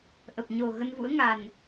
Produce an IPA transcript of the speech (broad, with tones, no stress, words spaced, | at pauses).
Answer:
ʔə˨˩p̚ɲo˨˩ ɣə˧nvṵ˧˥ə̯ŋa˨˩n